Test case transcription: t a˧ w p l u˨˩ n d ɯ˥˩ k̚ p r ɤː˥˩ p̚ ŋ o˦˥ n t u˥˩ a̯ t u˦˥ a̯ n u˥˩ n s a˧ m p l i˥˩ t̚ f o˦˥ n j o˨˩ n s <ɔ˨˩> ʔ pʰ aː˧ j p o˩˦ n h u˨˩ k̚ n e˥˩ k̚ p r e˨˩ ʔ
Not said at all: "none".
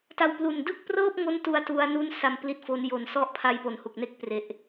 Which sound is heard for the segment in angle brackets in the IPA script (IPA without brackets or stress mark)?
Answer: ɔ˥˩